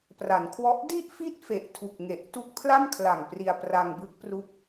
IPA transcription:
pra˩˦nkʰwɔ˦˥ʔ di˥˩ʔ fi˥˩t̚fe˨˩ʔtʰu˨˩k̚ŋe˨˩ʔ tu˦˥k̚pʰla˥˩mkʰla˨˩ŋ pri˧a̯pra˧ŋbɯ˦˥k̚pru˦˥k̚

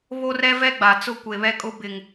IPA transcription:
βo˦rɛ˦vɛ˦ ɡ͡ba˨ t͡sʊ˦kʷe˨βɛ˦kʼʊ˦ bɪ˨ŋ

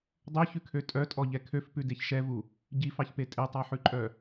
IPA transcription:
dˤøçʉkʰø tʼœtʼɔʎɛ kʰøfpʉdeç ʃɛvu | ɟifɑçpe tʼetˤɑħʉǃʼœ

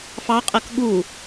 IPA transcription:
fɑqʼɜk ɠu

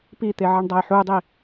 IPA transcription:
pit̪eʕɐɳ dˤajħudˤi

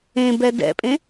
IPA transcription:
ẽbɛ dɛ̰pʼẽ

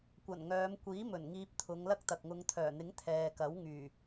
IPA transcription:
kʷɐ˨˩nŋœː˨˧m kʷiː˨˥mɵ˨˩n ŋiː˧p̚t̪ʰʊ˨˧ŋlɐ˥k̚t̪ɐ˨k̚ ŋʊ˨˧ŋt̪ʰœː˨˩n̪ɪ˨˥ŋ t̪ʰɛː˨kɐ˨˥wŋyː˨˩

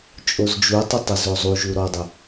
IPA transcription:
t͡ʃʼozd͡ʒutˤɘ tˤɘzozˤuʒu ɾɔdˤɪ

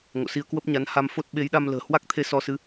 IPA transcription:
ŋo̰˧˨si˧ə̯kwə˦˥p̚ɲa˨˦n ha˧m fo˦˥t̚ɓe˨˦jɗa˧m lə̤ː˨˩hwa˦˥k̚t̪ʰe˧ sɔ˧sɨ˨˦

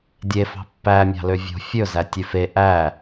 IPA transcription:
dʲefɑ̤ pːæ mʲɑ̤løvʲo̤ fʲɵzæ tʲʉfe ʔæ

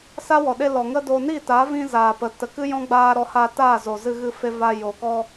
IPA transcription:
sa˦wɔ˨ɗe˧ lɔ˨ŋə˦ do˧ ni˦˨ta˨˦vĩ˧ zaː˨pə˨tə˨kɨ˦ jɔ̃˦ɡ͡baː˧ɾɔ˨˦ ha˧taː˦˨ zoː˨zɨ˧ɣɨ˧fe˧ va˧jo˨ kɔ˧

